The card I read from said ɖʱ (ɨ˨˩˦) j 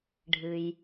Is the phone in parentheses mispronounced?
yes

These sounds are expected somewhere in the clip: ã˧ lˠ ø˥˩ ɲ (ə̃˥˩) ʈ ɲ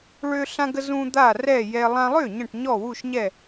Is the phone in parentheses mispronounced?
no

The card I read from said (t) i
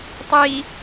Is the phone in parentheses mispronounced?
yes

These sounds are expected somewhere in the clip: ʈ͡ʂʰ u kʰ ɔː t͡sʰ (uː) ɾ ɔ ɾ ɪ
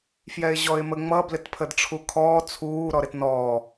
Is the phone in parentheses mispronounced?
no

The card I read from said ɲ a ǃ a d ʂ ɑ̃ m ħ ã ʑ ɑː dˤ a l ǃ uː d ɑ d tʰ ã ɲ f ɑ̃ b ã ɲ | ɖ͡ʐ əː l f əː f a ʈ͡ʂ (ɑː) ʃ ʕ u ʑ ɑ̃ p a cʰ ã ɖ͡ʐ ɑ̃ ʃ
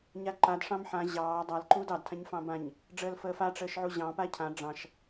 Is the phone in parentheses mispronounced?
yes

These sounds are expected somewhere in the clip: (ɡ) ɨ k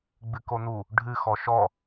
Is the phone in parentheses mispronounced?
yes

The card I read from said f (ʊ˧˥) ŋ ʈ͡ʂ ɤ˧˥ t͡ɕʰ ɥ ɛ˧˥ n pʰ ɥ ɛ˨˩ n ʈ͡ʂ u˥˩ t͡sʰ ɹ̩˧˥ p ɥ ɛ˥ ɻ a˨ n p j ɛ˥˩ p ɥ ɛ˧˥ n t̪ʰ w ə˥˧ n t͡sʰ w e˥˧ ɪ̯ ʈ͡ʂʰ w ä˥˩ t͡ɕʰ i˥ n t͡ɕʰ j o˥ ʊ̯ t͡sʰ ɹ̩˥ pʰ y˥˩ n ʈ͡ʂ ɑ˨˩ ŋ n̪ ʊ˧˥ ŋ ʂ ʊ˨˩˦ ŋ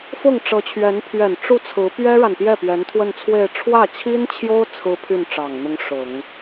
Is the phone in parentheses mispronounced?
yes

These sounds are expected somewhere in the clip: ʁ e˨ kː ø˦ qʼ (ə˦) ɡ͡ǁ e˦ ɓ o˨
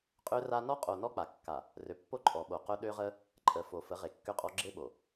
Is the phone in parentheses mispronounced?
yes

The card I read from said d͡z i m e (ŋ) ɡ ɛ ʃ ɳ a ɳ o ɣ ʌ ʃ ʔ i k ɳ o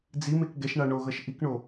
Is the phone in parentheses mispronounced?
yes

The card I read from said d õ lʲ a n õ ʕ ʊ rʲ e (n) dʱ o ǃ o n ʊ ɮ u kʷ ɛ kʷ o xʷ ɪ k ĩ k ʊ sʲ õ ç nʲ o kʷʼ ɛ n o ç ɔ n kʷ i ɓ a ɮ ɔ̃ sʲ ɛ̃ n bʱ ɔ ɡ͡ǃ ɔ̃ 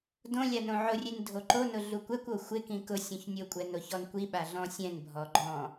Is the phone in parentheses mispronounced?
no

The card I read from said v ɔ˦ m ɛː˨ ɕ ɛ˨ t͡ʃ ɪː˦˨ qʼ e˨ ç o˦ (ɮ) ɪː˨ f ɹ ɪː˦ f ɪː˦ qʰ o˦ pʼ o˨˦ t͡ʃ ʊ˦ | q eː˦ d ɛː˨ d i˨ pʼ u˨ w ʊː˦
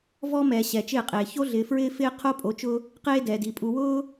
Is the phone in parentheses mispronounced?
no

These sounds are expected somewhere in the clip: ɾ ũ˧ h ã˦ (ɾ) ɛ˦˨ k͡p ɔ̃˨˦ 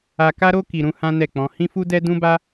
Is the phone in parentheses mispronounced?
yes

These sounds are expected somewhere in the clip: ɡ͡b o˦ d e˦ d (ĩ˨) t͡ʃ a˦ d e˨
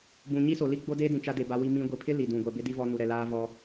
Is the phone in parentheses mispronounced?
no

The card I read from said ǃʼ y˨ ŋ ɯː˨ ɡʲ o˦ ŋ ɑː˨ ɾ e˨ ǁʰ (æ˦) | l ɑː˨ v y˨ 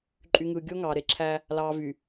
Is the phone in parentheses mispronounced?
no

